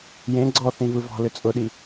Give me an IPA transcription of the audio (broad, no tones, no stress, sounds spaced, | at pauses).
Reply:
j ẽ ɡ͡ǀ ɔ θ ĩ v ɯ v ɔ̤ l ʏ t͡sʼ ʊ ɗ i